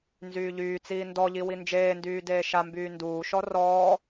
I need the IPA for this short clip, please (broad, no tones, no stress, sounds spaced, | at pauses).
n z yː ʎ yː t͡s iː n d ɔ ʎ i w i n d͡ʒ eː n d yː d eː ʃ a m b yː n d uː ʃ ɔ r ɔː